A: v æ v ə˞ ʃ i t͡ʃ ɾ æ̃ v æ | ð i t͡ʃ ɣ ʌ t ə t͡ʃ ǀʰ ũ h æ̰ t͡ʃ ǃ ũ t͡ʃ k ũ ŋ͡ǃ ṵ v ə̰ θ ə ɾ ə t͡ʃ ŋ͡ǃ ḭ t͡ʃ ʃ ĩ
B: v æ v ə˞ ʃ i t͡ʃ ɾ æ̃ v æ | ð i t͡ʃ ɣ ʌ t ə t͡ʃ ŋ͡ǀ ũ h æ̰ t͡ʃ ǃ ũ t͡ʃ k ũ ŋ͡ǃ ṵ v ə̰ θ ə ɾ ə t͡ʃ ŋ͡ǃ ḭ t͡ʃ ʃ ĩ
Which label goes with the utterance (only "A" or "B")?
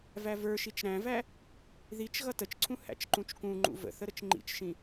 A